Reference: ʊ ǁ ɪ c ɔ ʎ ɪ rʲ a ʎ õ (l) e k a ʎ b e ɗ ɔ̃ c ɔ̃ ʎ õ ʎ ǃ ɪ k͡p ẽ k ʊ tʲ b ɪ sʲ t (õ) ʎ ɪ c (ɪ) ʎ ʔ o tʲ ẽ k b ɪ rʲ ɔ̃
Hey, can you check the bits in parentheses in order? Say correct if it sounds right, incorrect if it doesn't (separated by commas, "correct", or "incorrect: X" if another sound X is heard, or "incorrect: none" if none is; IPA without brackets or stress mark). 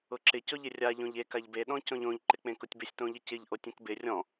incorrect: ʎ, correct, correct